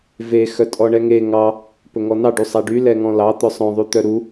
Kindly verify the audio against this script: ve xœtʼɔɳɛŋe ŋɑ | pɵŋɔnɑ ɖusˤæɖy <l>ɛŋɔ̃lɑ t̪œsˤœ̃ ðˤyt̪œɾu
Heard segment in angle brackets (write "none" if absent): l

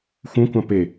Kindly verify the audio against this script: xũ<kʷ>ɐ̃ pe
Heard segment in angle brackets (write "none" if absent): kʷ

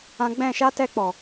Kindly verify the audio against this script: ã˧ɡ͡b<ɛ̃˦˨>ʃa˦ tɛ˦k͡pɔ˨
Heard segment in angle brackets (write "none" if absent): ɛ̃˦˨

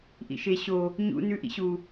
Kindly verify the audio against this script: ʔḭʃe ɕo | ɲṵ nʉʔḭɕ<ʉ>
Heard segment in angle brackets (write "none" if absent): u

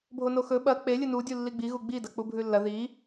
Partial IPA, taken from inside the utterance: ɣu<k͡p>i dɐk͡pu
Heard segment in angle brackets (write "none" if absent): ɡ͡b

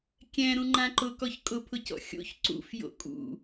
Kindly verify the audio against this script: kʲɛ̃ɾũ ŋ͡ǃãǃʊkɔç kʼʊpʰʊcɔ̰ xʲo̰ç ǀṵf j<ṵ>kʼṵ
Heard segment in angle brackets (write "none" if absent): o̰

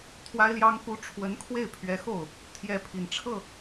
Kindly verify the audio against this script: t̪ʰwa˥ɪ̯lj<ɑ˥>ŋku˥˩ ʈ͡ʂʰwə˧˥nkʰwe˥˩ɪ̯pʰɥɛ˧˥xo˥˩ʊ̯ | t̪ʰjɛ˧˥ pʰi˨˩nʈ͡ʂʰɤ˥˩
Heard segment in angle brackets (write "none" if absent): ɑ˥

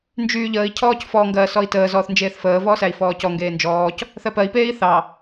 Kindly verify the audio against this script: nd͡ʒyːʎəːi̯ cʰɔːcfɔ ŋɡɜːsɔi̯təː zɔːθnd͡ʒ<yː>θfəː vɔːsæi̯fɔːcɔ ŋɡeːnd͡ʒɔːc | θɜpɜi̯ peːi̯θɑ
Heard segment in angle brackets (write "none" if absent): eː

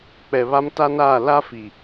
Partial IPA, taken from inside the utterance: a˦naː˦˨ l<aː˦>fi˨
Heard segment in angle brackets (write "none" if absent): a˦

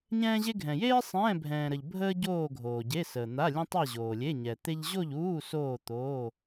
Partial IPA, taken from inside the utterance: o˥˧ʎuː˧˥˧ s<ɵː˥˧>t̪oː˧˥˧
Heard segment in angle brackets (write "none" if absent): oː˥˧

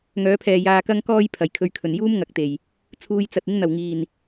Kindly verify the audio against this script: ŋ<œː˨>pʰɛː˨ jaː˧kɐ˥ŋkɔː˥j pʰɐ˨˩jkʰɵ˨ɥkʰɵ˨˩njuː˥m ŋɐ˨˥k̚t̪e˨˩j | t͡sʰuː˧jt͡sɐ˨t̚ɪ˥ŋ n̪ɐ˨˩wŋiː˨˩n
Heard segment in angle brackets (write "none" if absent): œː˨˥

